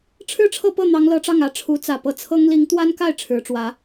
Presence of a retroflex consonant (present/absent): present